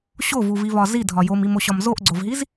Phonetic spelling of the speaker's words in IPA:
ɕ o v u v i v ɒ z i dʱ ɒ j o m i m o ɕ ɒ m z o ʔ ɡ͡ǀ o v ɦ i z

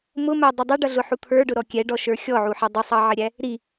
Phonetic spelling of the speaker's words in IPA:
m ʊ m æ dˤ ʌ dˤ ɛ ɖ ʌ ɮ ʊ ħ u t̪ʰ ə˞ ɖ ʊ ɾ ɔ kʲ ɛ ɖ ɔ ʃ ə˞ xʲ ɔ ʕ u ħ ʌ dˤ ə sˤ ɑ ʕ ɪ ɾʲ æ | ɾ i

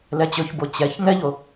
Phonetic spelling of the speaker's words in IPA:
l ɛ t͡ɕ ɵ ç b o t͡ɕ ɛ ç ŋ ɛ ʎ o

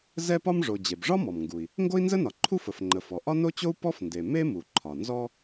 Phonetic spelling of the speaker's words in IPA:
z ɛ˥ p ɒ˥ m ʐ o˩ d͡ʑ e˩ b ʐ ɒ˥ m ɔ˩ m ŋ ɡ u˩ i̯ | ŋ ɡ o˥ i̯ n z ə˥ n ɒ˩ ǃʰ u˥ f ə˩ f ŋ͡ǃ ə˩ f ɔ˩ ʔ ɒ˥ n o˥ t͡ɕ o˥ u̯ p ɔ˥ f n d e˩ m e˥ m u˩ ǃʰ ɒ˩ n z ɔ˥

